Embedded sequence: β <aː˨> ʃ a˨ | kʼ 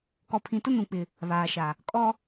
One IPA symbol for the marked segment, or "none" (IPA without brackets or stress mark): aː˨